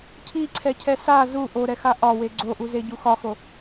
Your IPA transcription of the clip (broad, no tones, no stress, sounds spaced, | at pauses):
cʰ i ǀʰ ɛ cʰ ɛ s a z u ʔ o ɾ ɛ x a ʔ ɒ w e ɡ͡ǀ o ʔ u z e ɟ u x ɒ x o